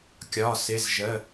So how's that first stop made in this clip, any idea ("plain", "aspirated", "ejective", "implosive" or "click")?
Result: plain